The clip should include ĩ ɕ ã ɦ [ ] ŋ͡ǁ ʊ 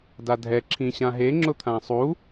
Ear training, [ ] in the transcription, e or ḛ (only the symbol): e